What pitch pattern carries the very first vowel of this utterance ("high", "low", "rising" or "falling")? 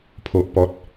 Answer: low